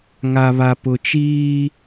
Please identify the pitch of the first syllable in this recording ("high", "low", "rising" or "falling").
low